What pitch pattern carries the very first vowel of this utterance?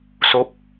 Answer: rising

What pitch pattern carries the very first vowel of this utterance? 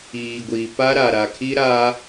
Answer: low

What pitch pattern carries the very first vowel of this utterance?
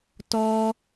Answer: high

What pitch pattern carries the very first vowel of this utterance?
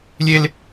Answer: high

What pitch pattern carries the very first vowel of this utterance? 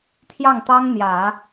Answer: falling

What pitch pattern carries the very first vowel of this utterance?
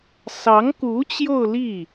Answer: rising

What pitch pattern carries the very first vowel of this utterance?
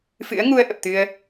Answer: rising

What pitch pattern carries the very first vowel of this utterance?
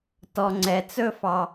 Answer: low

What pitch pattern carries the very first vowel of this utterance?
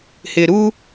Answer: low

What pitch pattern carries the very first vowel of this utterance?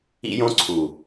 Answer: high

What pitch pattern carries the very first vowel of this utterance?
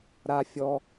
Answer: high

